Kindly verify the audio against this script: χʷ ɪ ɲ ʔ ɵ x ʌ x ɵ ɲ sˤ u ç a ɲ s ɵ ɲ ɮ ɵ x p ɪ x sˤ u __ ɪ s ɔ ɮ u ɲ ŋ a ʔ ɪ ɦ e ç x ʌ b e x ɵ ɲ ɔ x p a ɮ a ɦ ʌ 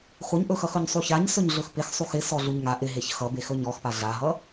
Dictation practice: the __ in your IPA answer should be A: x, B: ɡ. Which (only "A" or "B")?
A